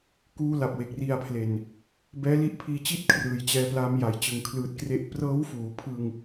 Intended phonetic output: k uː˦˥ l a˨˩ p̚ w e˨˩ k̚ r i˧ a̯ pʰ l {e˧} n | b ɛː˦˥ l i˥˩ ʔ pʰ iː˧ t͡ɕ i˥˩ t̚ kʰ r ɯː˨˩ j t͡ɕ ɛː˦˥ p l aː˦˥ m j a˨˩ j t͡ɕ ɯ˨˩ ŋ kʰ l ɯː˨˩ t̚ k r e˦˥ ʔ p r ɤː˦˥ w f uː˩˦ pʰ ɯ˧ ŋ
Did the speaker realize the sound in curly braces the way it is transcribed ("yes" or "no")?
no